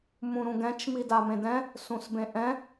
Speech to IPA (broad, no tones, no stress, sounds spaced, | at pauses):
m ũ ɾ ũ ɡ ɛ̃ t͡ʃ m i d a m ẽ d ɛ̃ | s ũ s b ẽ ʔ ɛ̃